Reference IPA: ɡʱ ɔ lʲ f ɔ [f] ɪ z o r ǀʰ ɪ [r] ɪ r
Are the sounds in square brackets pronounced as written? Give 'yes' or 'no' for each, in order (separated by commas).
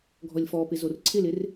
no, no